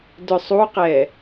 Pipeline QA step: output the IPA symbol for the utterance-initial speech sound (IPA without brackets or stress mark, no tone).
d